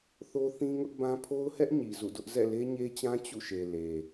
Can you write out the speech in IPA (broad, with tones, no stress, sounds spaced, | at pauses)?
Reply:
θ o˦ θ ĩ˦ ŋ ʊ˦ ʔ b ã˦ pʰ o˦ ʊ̯ h ɛ˦ ʔ ɲ i˨ z ṵ˦˨ d ʊ˦ ʔ z ɛ̰˦˨ l e˦ ɲ e˦ t͡ɕ ã˦ t͡ɕ ṵ˦˨ ʃ e˨ l e˨